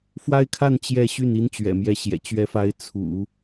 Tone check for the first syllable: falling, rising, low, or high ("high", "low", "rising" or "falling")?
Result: high